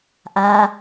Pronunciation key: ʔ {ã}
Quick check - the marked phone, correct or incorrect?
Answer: incorrect